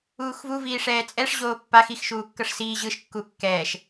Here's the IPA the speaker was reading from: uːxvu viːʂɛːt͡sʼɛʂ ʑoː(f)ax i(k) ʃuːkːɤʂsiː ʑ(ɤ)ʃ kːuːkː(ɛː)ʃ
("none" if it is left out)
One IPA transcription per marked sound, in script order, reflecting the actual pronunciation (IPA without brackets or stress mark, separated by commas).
pː, x, ɯ, ɛː